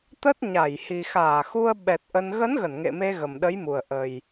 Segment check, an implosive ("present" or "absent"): present